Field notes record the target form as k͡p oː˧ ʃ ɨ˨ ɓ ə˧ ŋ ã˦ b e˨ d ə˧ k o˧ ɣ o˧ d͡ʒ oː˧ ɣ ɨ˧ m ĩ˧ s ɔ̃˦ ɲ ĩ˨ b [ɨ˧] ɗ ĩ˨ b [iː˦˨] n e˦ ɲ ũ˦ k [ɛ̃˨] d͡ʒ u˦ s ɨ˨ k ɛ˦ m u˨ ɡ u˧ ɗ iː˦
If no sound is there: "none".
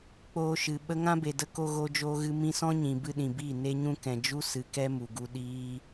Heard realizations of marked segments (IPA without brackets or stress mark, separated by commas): ɨ˧, iː˦˨, ɛ̃˨